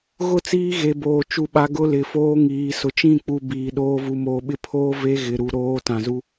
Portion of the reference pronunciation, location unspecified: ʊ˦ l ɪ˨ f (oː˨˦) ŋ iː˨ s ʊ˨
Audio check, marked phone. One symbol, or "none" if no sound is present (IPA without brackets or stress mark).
oː˦